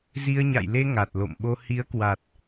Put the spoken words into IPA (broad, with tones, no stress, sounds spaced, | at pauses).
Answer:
z i˧ ə̯ ɲ a̰˧˨ j l e˧ ŋ a˨˩ t̚ l o̰˧˨ m ɓ o˧ h i˨˦ ə̯ k w a˨˩ t̚